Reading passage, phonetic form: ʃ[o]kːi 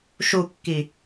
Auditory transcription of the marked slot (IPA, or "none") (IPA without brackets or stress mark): u